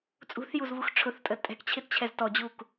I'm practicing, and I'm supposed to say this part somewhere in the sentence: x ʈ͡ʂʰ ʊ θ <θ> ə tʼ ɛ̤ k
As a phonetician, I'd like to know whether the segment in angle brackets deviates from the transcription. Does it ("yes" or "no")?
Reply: yes